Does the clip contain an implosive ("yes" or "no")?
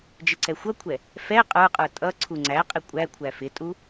no